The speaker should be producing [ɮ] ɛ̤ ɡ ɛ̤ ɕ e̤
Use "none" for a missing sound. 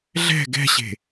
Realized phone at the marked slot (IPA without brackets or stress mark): ɮ